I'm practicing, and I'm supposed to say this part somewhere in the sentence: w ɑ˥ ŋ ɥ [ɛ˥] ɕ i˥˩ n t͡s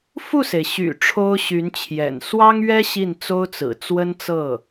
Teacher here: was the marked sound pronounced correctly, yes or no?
yes